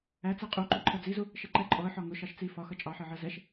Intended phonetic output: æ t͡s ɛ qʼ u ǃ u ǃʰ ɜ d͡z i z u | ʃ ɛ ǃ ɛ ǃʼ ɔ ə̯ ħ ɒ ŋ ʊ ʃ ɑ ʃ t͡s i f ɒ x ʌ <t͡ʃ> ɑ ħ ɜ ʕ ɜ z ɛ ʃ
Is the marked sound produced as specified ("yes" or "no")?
no